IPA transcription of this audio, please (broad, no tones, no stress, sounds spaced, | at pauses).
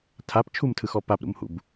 tʰ a p t͡ʃʰ u m tʰ ɯ x ɔ p a p ɾ ṵ m h ṵ b